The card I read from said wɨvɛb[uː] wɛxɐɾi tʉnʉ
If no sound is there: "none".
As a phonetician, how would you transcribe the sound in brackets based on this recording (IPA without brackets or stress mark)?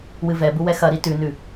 u